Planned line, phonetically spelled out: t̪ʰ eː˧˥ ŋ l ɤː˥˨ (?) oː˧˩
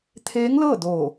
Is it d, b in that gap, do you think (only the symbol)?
d